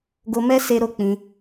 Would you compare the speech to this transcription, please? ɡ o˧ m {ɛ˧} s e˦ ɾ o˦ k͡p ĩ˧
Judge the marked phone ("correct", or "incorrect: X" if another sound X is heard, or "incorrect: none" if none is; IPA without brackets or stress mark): incorrect: ɛ˦